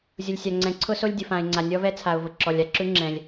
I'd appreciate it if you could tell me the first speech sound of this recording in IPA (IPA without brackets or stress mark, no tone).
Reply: zʲ